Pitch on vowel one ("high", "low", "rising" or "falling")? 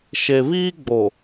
low